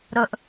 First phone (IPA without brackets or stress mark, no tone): ɾ